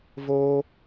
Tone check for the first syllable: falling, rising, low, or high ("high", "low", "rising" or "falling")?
high